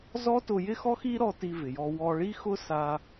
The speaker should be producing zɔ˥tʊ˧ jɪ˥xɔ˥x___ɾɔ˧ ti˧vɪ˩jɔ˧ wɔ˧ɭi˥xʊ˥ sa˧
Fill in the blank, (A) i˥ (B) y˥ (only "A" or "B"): A